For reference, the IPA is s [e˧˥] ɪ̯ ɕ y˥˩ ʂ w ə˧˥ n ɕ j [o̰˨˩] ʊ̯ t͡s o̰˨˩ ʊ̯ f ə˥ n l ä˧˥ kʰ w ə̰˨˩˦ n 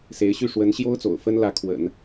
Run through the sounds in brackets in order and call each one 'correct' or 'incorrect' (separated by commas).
correct, incorrect